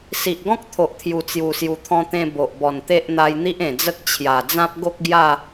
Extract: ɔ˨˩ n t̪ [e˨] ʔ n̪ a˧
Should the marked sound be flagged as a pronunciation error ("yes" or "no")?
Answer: yes